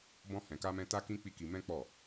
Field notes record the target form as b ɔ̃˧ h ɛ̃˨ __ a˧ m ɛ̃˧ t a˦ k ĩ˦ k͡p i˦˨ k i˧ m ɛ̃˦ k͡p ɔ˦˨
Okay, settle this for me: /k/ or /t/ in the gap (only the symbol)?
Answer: k